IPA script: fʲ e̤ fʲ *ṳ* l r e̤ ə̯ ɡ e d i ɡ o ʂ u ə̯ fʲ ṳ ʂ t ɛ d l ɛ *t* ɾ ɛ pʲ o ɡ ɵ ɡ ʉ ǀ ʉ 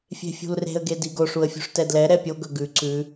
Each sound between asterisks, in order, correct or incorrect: correct, incorrect

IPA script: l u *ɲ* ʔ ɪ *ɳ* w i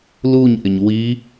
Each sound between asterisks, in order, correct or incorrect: correct, incorrect

